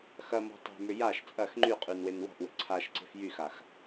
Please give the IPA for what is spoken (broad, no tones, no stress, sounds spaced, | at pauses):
x ɐ m ɔ̤ tˤ e̤ m ʏ j a ʃ t͡sʼ ɐ x ŋ͡ǃ y qʼ y n w e n w ɔ̤ ʔ w e̤ ǀʰ a ʃ ǀ e̤ f j y x a x